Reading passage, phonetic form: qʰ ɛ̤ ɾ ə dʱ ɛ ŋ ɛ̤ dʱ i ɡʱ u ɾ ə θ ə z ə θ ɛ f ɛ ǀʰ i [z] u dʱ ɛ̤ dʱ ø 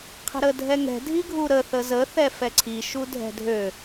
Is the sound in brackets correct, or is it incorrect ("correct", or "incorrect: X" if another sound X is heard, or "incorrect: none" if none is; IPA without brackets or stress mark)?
incorrect: ʃ